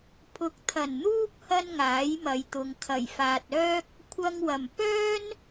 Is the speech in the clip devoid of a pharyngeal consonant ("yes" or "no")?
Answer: yes